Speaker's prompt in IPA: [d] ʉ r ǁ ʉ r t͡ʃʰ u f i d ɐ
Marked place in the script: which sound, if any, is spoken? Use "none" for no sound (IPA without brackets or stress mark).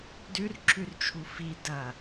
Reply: d